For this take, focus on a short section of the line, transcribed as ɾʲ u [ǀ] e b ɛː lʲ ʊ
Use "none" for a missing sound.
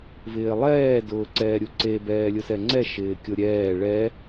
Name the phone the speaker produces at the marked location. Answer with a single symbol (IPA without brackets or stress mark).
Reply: ǀ